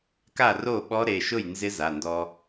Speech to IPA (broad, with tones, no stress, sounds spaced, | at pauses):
k a˥˩ r o˥˩ ɓ ɔ˧˥ ɾ e˩˧˩ ʃ ʊ˥˩ j n z ɪ˧˥ z a˩˧˩ n d ɔ˧